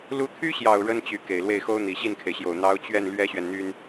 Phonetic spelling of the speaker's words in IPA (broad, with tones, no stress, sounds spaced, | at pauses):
l u˧˥ t̪ʰ y˥ ɕ j ɑ˨˩ ʊ̯ ɻ ə˥ n t͡ɕ y˧˥ k e˨˩ ɪ̯ l w e˥˩ ɪ̯ x o˥ ʊ̯ n̪ i˨˩ ɕ i˥˩ n kʰ e˩ ɪ̯ ɕ j o˨˩ ʊ̯ n̪ ɑ˧˥ ʊ̯ t͡ɕ ɥ ɛ˥˩ n l ɥ ɛ˥ ɕ ɥ ɛ˨ n n̪ y˥ n